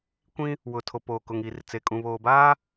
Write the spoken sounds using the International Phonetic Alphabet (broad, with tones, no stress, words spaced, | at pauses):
kʷĩ˦ | wʊ˨ tʰo˨poː˨kʊ˨ŋ i˨r t͡se˨kʼũ˨βoː˨baː˦